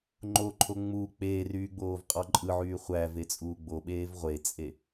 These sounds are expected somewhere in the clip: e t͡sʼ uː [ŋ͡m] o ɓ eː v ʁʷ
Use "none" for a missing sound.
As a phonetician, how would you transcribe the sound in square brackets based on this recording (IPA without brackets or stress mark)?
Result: ɡ͡b